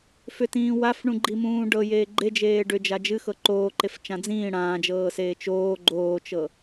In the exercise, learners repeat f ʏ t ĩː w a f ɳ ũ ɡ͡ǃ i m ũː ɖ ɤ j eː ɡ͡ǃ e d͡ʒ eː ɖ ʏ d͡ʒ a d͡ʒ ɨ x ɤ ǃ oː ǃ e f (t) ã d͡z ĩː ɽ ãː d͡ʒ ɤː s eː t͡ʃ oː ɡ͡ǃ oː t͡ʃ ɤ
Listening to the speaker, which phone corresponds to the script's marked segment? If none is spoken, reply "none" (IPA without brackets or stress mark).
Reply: t͡ʃ